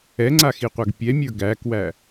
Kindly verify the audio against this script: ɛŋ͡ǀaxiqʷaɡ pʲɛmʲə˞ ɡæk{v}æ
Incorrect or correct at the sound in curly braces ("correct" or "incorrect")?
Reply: incorrect